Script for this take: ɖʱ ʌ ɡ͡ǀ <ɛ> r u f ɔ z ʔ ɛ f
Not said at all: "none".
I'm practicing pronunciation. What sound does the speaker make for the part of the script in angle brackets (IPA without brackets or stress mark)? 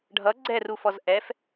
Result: ɛ